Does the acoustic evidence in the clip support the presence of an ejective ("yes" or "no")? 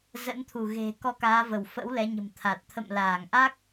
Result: no